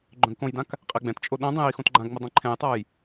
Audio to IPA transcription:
ɡ͡ǃ œ̃ ɡ k õ j d ã k | qʼ ɛ ɡ͡b ɛ̃ t t͡ʃʼ o ɗ õ dˤ ĩ j i x õ t ɡ͡ǃ ã ɡ ŋ͡m ə dˤ ĩ ǃʰ ɛ̃ j tˤ a j

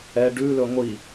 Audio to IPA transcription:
ɛ ɖ ʉ l ɵ ŋʷ i

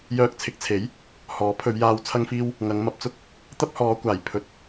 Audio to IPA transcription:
j œː˧ k̚ t͡sʰ ɪ˨˥ k̚ t͡sʰ e˨˥ j | h ɔː˨˥ pʰ ɵ˨˧ ɥ j aː˧ w t͡sʰ ɐ˥ ŋ f iː˥ w | ŋ ɐ˨˧ ŋ m ɐ˧ p̚ t͡s ʊ˥ k̚ | t̪ ɐ˥ p̚ h ɔː˨˧ kʷ aː˨˩ j pʰ ɵ˨˥ t̚

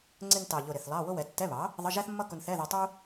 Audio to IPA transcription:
ŋ͡ǀ ɪ˧ n t ɑ˨˩ ʎ ʊ˨˩ ɾ ɪ˨˩ θ lˠ ɑ˧˥˧ w ʊ˥ w ɛ˩˥ tː ɛ˧˥˧ β ɑ˩˥ | ðˤ ə˧˥˧ ʒ æ˥ θ mː ʌ˥ k ʊ˧ n θ ɛ˧˥˧ ð ɛ˧ tˤ u˥

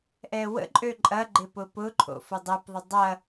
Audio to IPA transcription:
ʔ ɛ w ə̰ ǃʼ ø ǃʼ ɐ ɡ͡ǃ ɪ p ʊ p ʊ ǃʰ o̰ f ʊ dˤ ɛ p ðˤ ɪ dˤ ɐ

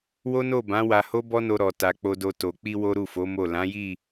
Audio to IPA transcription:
w o˦ n o˦˨ b ã˨˦ w a˧ h o˦ b ɔ˦ n o˧ ɾ ɔ˨ t a˨ k͡p o˨ d o˨ t o˨ k͡p i˧ w o˦ ɾ u˦˨ f o˨˦ m o˦˨ l ã˨˦ j i˦˨

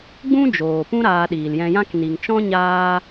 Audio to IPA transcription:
ɡ͡b ũ˦ d͡ʒ oː˨ p ũ˦ ɾ aː˧ ɗ iː˨ l j ɛ̃˧ j ã˦ k n i˨ ŋ t͡ʃ ɔ̃˦ ɲ aː˦

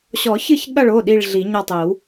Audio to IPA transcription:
ɕ ɔ˨˩˦ ç ɨ˦˨ ç ɠ ɐ˦˨ ɭ o˩˧˩ ɗ i˦˨ ɭ ɮ i˨˩˦ ɲ ɐ˦˨ tˤ i˨˩˦ w

